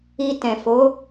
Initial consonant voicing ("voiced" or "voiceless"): voiceless